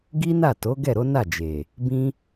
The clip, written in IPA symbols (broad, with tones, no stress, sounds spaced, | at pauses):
ɡ i˦ n a˦˨ t o˨˦ ɡ ɛ˦˨ ɾ o˨˦ n a˦˨ d͡ʒ e˨ | b ĩ˦